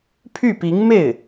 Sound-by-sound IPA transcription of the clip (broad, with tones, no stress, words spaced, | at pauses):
pʰy˥˩pi˧˥ŋme˥˩ɪ̯